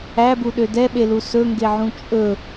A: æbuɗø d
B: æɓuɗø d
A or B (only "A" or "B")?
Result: A